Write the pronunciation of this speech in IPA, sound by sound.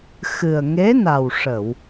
x ɨ˨˩ ə̯ ŋ e˧˥ n a˨˩ w ʂ ə˨˩˨ w

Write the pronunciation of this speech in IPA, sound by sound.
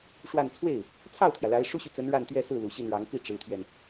ʂ w a˥˧ n t͡sʰ w e˥˩ ɪ̯ | t͡sʰ ɑ˥˩ ʊ̯ t̪ʰ j ä˩ l a˧˥ ɪ̯ ʂ u˥ ɕ y˨ t͡s ə˧˥ n ɻ a˥˧ n t̪ ɥ ɛ˥˧ s ɹ̩˥˩ l u˨˩ ɕ i˥˩ n ɻ ɑ˧˥ ŋ p i˥˩ ʈ͡ʂ ɻ̩˧˥ t̪ʰ ɥ ɛ˧ n

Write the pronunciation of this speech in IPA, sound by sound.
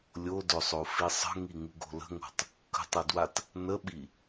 lʲ o d ɵ sˤ o f i sˤ ə̤ ŋ i ŋ ɯ ɡ o̤ l ə̤ ŋ o̤ tˤ | k ə̤ tˤ ɯ d w a t | n ə ɓ i

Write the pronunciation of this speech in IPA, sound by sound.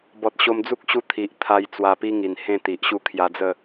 b ɔ˨ t̚ ɕ o˧ m d͡z u˦ k̚ ɕ u˧ t̪ʰ i˨ ʔ t̪ʰ a˧ j t͡s w a˧ p i˦ ŋ i˨˩ n h ẽ˥˧ t̪ i˨ ʔ ɕ u˥˧ kʰ j a˧ d͡z ə˥˧

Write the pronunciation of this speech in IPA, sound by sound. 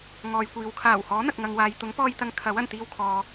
ŋ ɔː˨ j kʷ iː˨ w kʰ aː˨˩ w h ɔː˨˥ n̪ ɐ˨ k̚ ŋ ɐ˨ ŋ w aː˨ j t̪ ʊ˨˥ ŋ p ɔː˧ j t̪ ɐ˨˧ ŋ kʰ ɐ˨˥ w ɐ˨˩ n t̪ iː˧ w kʰ ɔː˨

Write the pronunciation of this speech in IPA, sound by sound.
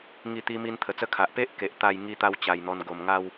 ŋ i˥˧ t̪ i˦ m i˧ n t̪ʰ ə˨˩ t͡s ə˥˧ kʰ a˨ ʔ p e˦ ʔ k e˨ ʔ t̪ a˥˧ j ŋ i˧ t̪ a˧ w t͡ɕ a˨˩ j n̪ ɔ˧ n ɡ o˨˩ m ŋ a˥˧ w

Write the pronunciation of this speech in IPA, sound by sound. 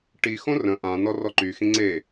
ʈ i x õ r ə̃ ʔ ã n ɔ r ɔ ǃ y x ĩ ŋ͡ǀ e

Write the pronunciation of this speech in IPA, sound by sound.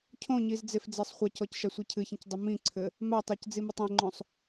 cʰ õ ɲ i z d͡z e f d͡z e sˤ χʷ ɐ c ɔ c ʃ a sʷ i cʰ ɨ ç ĩ c dˤ u m ĩ ǀʰ ɘ | m a tˤ a c d͡z i m e tˤ ẽ ŋ͡ǃ õ sˤ

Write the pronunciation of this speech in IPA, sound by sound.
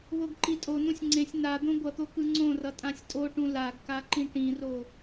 β o ɡ ǃ i tʼ o n ũ sʲ ŋ͡ǀ ẽ sʲ n a d̪ õ ɡʷ ʌ t̪ o k ɯ ŋ͡ǀ õ r ʌ tʼ ã sʲ tʼ o ʈ ũ l a ɡ k a ǃ ĩ ʈ ĩ r o

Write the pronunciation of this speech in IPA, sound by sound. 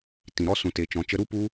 t ĩ˨ ɾ ɔ˧ s ũ˨ t e˨ t͡ʃ ɔ̃˨ t͡ʃ ə˧ ɾ u˦ p u˦

